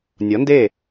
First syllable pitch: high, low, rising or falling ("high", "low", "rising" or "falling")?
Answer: rising